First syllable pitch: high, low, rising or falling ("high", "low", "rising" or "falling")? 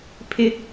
low